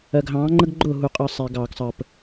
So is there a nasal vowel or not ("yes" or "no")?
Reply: yes